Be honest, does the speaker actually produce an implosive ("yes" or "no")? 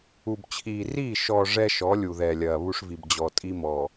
no